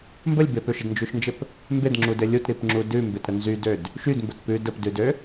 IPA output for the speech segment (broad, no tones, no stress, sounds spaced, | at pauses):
m b ə lʲ b e p ø ʃ ə d n d͡ʒ ʉ ʃ n d͡ʒ ɘ p | m b e d ŋ͡ǁ u d ɘ lʲ u t ɾ i p ŋ͡ǁ u d ʉ m b e t ɾ ə n z y d ø d | ʃ y d m b ə t p ʉ d ə p d ʉ d ø